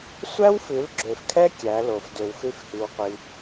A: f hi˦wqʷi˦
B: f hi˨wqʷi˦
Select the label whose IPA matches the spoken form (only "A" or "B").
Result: A